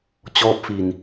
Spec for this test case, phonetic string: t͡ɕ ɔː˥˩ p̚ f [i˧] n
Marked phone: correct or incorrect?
correct